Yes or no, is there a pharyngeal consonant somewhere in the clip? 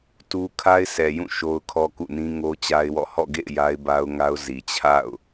no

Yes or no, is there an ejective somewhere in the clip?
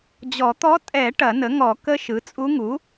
yes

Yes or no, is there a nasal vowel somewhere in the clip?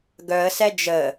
no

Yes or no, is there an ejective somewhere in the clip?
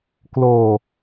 no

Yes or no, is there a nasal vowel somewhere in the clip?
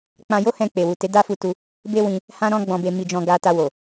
yes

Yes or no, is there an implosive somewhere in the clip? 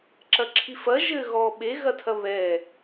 yes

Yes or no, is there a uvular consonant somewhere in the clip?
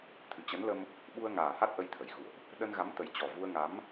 no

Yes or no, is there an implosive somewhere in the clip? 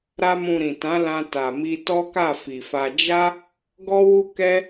no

